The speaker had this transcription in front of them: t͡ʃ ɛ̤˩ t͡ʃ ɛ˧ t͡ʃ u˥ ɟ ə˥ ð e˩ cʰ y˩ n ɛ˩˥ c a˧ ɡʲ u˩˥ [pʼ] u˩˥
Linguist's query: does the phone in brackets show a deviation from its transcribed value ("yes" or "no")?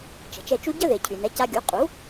yes